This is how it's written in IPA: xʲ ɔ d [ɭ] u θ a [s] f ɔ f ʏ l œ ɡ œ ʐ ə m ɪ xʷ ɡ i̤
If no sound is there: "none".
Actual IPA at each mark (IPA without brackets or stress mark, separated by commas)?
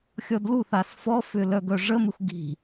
l, s